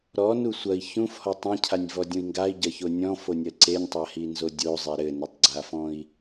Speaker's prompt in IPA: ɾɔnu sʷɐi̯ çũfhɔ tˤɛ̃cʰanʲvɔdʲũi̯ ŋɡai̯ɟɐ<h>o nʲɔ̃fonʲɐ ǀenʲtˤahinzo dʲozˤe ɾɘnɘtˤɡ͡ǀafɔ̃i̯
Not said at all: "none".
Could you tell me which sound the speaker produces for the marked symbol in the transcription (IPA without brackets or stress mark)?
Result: ç